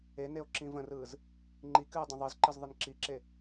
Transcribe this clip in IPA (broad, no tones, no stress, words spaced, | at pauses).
eneo̯ ǁĩvə̃rɯːz | ŋ͡ǃikɨː dˤə̃ðˤɯzǃɨz ðˤɯnǁiǁe